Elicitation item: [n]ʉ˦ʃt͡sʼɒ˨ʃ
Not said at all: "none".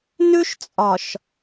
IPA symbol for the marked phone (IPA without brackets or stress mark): n